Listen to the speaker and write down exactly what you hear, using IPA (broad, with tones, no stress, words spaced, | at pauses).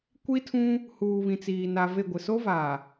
kʷi˦tʰũ˦ | huː˨βĩ˨t͡siː˨ na˨ve˦˨ɡʷɪ˨ so˦va˨